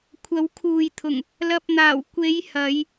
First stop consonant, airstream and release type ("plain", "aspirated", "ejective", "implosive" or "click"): aspirated